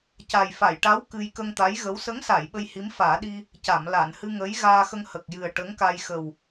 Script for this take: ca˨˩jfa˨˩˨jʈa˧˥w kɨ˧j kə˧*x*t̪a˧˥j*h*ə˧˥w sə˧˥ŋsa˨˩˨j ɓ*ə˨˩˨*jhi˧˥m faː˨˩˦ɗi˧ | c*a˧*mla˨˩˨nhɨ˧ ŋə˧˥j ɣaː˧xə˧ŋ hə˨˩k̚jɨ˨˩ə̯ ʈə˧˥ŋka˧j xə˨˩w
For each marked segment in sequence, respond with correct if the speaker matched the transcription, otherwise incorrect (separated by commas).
incorrect, incorrect, incorrect, incorrect